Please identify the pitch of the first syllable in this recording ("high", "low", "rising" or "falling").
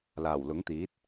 low